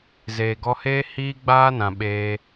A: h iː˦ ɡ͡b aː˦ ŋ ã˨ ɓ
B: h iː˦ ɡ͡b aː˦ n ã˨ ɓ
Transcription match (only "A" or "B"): B